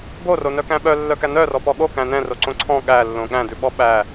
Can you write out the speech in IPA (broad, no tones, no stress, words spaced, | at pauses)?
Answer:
boronœkæ̃ ɓœlːœkæ nœrɔpɔ ɠokæ̃ nɛ̃roǀõ ǀʰɔ̃ ɠælːõ ɠæ̃dʉɓɔ ɓæ